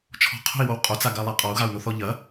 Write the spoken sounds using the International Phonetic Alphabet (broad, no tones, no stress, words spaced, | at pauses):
t͡ʃʰɔ̤qʰo̤i̯wow qʼot͡saɡalˠa qʼɔu̯ɣau̯noθɔ ʎɐ